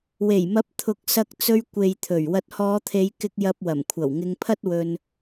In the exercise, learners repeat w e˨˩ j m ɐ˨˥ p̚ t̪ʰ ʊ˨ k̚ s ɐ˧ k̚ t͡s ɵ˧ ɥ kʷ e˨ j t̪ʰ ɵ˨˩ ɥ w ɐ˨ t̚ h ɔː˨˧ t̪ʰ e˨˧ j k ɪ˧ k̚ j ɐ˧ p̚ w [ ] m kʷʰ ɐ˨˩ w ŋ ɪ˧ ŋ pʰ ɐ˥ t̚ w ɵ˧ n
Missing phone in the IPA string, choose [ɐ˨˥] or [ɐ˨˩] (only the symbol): ɐ˨˩